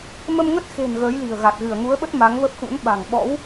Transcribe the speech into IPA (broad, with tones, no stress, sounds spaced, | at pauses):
m ə˧ m ŋ ə˦˥ t̚ x e̤˨˩ n ɣ əː˨˦ j l i̤˨˩ ə̯ ɣ a˨˩ t̚ ɣ ɨ˧˩ ə̯ ŋ u˨˦ ə̯ ɓ ə˦˥ t̚ m a˨˦ ŋ v ə˦˥ p̚ x ṵ˧˥ n ɓ a̤˨˩ ŋ ɓ ɔ̰˧˥ w